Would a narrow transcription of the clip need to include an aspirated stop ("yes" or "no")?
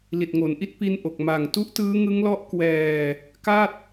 no